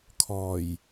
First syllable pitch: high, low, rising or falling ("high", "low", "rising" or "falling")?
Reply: low